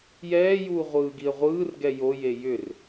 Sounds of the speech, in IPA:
j ɛː j uː ʁʷ ɯː ɡ i ə̯ ʁʷ ɯː r ɡ ɛ j o j e j ʏ r

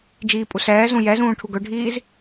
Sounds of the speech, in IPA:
d͡ʒ iː pʼ u s ɛː z ũ j ɛ z ũː ʈʰ u ɡ ɵ ɖʱ iː z

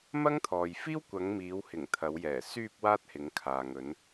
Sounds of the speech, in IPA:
m ɐ˥ ŋ t̪ʰ ɔː˨ j f iː˥ w kʷ ɐ˨˧ ŋ m iː˨˧ w h ɪ˨˩ ŋ t̪ʰ ɐ˨˧ w j ɛː˨˩ s yː˧ p̚ w aː˥ t̚ h ɪ˨˧ ŋ kʰ aː˨ ŋ ɵ˨˧ n

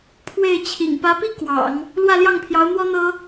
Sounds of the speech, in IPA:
pʰ w e˥˩ ɪ̯ t͡ɕʰ ḭ˨˩ ŋ p ä˧˥ p i˥ k w ɑ̰˨˩˦ ŋ | l w ä˥˧ l j ɑ˥˩ ŋ pʰ j ɑ˧˥ ʊ̯ n̪ w ɔ˥ n̪ ɤ˥

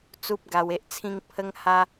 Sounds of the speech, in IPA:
t͡s u˦ p̚ ɡ a˧ w e˦ ʔ t͡sʰ ĩ˦ ŋ pʰ ə˦ ŋ h a˦

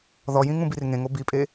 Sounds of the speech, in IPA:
ð ɔ j ĩ ŋ ũ b i r ŋ ẽ ŋ o b i pʼ e

